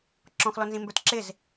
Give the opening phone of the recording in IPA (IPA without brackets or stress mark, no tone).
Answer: ǁ